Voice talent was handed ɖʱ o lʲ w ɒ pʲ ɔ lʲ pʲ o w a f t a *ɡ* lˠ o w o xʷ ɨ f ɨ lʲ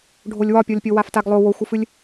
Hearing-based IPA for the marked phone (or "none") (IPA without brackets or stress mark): ɡ